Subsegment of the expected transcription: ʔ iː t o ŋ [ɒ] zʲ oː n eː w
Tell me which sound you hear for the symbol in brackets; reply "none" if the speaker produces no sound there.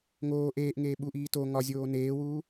ɒ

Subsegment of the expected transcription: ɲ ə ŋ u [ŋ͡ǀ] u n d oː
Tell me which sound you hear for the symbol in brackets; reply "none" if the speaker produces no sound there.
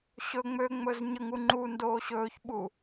ŋ͡ǃ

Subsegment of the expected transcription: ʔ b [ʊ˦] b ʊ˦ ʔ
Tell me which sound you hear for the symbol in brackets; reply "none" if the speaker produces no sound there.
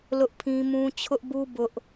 u˦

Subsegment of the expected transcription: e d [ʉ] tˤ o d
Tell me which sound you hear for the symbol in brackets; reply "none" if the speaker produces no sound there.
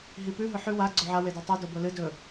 ʉ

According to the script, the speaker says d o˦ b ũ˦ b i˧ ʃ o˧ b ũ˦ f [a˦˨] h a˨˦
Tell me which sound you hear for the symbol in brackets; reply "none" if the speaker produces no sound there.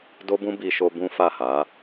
a˦˨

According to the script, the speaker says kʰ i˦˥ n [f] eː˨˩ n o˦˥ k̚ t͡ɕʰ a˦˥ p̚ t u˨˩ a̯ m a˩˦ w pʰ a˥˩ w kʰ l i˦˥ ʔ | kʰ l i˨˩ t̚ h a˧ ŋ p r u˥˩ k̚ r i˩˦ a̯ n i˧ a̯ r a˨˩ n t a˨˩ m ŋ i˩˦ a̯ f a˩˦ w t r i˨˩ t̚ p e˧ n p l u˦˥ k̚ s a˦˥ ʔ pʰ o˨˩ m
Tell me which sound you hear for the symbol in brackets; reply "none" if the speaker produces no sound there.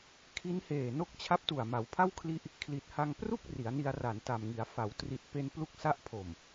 h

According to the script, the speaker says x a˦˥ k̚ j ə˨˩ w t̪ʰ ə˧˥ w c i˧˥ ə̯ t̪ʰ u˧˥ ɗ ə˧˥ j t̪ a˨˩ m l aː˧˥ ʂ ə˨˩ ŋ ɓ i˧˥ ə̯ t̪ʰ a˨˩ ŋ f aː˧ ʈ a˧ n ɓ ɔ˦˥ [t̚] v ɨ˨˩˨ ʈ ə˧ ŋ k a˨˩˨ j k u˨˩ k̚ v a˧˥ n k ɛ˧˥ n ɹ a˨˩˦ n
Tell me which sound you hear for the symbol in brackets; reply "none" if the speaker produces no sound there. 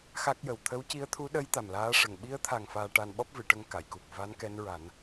p̚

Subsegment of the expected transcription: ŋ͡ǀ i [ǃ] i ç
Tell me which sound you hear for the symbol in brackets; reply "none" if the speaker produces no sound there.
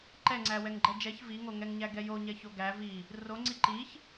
ǃ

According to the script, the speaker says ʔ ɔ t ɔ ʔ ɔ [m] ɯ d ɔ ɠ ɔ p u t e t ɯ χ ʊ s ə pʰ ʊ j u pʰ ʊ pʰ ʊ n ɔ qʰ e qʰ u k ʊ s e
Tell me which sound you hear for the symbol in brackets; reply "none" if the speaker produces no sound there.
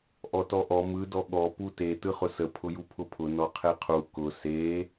m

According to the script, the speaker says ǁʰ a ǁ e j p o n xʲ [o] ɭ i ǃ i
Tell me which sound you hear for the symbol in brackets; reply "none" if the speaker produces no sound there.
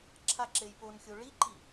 o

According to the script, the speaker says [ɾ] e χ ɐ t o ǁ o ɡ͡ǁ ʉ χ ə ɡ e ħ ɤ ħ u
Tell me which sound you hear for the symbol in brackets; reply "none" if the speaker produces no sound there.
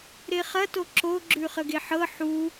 ɾ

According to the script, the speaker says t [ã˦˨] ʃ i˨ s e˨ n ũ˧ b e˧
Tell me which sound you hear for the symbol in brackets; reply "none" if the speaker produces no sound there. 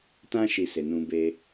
ã˧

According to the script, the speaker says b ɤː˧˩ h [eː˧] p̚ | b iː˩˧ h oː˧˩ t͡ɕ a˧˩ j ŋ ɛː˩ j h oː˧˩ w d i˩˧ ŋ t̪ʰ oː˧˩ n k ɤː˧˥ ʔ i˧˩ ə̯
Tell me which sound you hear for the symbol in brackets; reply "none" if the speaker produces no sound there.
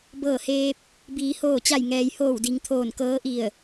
eː˧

